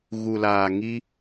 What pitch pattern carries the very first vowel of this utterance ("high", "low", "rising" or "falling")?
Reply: low